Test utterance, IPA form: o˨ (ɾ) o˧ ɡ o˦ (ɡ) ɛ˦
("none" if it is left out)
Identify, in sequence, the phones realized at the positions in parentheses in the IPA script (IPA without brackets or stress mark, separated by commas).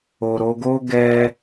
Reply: ɾ, ɡ